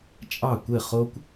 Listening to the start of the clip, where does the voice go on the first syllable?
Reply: falling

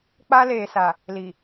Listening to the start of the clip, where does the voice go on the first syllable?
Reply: high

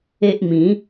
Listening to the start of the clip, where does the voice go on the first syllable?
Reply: high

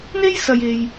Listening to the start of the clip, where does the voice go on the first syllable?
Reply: high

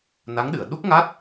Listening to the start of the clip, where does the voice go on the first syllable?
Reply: rising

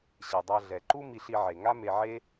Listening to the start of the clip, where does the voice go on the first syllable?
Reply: low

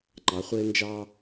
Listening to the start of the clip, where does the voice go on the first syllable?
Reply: rising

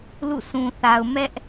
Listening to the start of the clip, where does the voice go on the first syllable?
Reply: falling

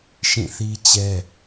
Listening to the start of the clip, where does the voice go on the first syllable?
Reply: falling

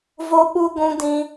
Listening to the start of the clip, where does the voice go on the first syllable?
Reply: high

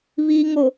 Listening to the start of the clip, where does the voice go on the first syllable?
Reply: low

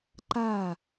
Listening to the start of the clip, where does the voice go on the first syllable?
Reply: falling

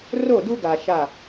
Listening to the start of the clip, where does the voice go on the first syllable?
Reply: falling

